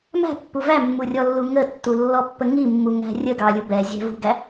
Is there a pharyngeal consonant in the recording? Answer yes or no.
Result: no